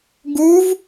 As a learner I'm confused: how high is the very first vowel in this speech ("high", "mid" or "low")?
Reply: high